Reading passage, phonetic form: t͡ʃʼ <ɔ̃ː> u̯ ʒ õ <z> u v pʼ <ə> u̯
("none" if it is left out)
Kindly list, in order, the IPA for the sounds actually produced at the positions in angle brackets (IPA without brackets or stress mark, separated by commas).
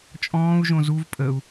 ɔ̃ː, z, ə